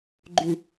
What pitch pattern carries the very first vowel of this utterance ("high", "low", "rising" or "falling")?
low